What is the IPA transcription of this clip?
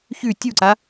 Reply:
çʉ tʲuǀa

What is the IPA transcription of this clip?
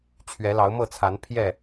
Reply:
t͡ɕʰɥɛ˨˦lɑ˨˦ʊ̯ mɤ˥˨t͡sʰa˨˦n pʰjɛ˥˨

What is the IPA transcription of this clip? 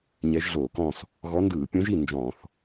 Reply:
ɲɛ˧˥ʒɮoː˧˩˧kɔ̃˥˨s | ɣɔ˧˥ndɯː˧˩˧ pʲõ˧˥ʒi˥˨ nd͡ʒɔ̃˧˩˧θ

